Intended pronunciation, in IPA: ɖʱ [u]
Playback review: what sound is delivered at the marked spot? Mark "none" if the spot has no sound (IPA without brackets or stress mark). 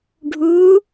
u